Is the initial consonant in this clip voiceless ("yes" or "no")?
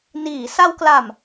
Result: no